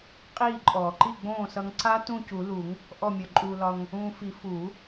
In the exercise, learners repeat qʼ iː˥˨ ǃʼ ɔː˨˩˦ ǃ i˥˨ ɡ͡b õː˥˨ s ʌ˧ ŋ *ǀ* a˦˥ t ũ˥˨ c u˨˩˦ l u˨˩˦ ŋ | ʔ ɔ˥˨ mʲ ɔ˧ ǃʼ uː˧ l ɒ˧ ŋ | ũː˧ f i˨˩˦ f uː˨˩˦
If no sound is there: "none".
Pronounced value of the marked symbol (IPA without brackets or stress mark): ǀ